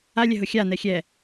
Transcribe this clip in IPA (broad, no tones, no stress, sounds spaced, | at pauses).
a lʲ ɛ ɦ ʊ xʲ a n ɛ xʲ ɛ